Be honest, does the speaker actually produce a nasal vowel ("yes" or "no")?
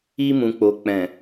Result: yes